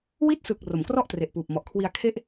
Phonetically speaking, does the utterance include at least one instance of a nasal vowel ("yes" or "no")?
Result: no